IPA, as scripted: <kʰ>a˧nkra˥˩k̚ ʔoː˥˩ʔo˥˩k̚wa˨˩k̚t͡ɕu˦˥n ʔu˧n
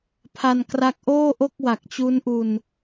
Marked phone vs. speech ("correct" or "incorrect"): incorrect